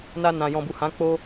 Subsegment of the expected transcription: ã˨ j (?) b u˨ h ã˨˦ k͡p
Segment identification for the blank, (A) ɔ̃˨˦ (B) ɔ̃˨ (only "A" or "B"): B